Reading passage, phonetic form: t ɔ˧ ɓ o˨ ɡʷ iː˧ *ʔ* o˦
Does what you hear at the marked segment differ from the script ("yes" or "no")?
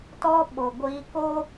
yes